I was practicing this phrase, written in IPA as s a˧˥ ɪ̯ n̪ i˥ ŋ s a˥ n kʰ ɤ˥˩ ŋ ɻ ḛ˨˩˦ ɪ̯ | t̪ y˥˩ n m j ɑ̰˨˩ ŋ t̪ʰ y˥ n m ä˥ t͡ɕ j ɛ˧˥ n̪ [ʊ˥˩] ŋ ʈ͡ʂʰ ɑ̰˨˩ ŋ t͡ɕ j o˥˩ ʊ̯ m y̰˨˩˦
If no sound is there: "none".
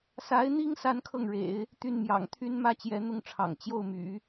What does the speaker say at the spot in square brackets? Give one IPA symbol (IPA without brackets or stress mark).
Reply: ʊ˥˩